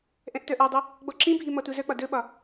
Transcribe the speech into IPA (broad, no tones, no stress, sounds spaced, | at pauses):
ʔ ɛ̃ ʔ t œ ʔ ɔ dˤ ɵ | ɡ͡b ɔ ǁ ĩ bʱ i m ɔ t u z œ k͡p ɒ d ɵ ɓ ɒ